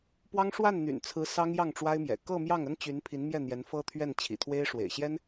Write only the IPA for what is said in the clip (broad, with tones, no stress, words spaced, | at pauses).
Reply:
pwɑ˥ŋ ʂwa˥˩nn̪y̰˨˩nt͡sʰɹ̩˧˥ sɑ˥ŋjɑ˥˩ŋʈ͡ʂwa˥ɪ̯mjɛ̰˨˩ kɤ˥˧ mjɑ˥˩ŋ ə˥nt͡ɕy˧˥n pʰi˧˥n mjɛ˥˩ n̪jɛ˧˥nfɤ˥ t̪ʰɥɛ˥˩nt͡ɕʰḭ˨˩t̪ʰwe˥ɪ̯ ʂwḛ˨˩ɪ̯ɕjɛ˥n